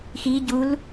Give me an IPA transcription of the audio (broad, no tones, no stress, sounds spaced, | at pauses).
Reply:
x i ɟ u l